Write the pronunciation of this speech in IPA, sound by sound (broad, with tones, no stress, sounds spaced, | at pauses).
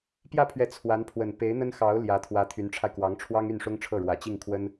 p j ä˥˩ pʰ ɥ ɛ˧˥ t͡sʰ w a˧˥ n pʰ w ə˨˩ n p e˧˥ ɪ̯ n̪ ə˥ n x ɑ˧˥ ʊ̯ l j ä˧˥ t̪ʰ w ä˧˥ t̪ʰ y˧˥ n ʈ͡ʂʰ a˧ ɪ̯ k w ɑ˧˥ ŋ ʈ͡ʂʰ w ɑ˥ ŋ y˥˩ n ʂ ʊ˥ ŋ ʈ͡ʂʰ ɤ˥˩ ɻ w ä˨˩ t͡ɕ i˥˩ ŋ kʰ w ə˥ n